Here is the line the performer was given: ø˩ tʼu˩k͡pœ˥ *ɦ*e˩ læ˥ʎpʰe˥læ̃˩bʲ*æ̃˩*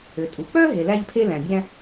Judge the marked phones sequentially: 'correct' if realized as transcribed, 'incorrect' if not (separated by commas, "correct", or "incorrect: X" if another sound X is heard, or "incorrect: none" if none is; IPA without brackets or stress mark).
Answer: correct, incorrect: æ̃˥